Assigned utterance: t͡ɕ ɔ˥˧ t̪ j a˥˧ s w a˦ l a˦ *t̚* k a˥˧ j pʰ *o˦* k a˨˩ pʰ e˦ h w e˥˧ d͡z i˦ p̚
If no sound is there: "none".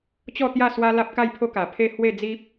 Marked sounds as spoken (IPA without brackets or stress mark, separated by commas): p̚, o˦